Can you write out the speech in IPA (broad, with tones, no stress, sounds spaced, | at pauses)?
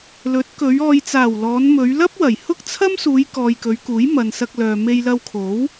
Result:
l ɵ˨˥ t̚ k ɵ˨˧ ɥ ɔː˨ j t͡s aː˨˩ w l ɔː˨˧ n m ɵ˨˧ ɥ l ɐ˥ p̚ w ɐ˨˩ j h ʊ˥ k̚ t͡sʰ ɐ˥ m s uː˨˧ j k ɔː˨ j k ɵ˨˧ ɥ k uː˨˥ j m ɐ˨ n s ɐ˧ k̚ l œː˨ m e˧ j l ɐ˧ w kʰ o˨˥ w